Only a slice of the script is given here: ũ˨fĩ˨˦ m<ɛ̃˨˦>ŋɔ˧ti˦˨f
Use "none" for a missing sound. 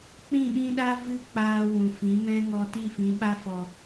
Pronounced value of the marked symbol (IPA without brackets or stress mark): ɛ̃˦